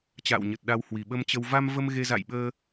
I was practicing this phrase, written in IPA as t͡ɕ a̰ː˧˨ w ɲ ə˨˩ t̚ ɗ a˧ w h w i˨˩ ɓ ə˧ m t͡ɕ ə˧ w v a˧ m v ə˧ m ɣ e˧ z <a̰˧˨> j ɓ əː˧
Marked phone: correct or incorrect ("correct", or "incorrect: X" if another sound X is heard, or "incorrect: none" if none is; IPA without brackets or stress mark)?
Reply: correct